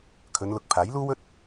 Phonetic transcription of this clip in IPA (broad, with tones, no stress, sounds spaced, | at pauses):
kʰ ɵ˨˧ n l ʊ˨ k̚ pʰ aː˨˥ j l uː˥ w ɵ˥ t̚